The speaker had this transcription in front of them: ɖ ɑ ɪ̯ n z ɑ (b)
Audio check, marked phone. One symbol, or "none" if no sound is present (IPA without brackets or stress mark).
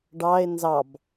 b